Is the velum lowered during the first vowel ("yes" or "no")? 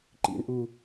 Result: no